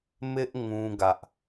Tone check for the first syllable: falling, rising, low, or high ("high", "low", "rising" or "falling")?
high